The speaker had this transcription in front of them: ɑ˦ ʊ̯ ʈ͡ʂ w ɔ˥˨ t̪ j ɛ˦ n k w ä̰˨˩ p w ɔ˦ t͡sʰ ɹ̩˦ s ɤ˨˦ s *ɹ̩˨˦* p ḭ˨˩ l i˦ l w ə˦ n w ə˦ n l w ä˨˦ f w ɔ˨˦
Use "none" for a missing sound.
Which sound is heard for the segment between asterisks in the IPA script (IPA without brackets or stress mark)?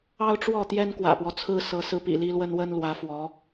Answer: ɹ̩˨˦